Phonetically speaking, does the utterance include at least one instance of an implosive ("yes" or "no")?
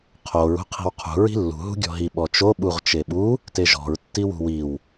yes